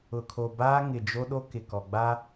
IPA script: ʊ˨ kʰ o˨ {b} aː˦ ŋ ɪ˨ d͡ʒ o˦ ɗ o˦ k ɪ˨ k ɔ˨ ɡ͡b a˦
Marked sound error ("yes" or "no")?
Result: no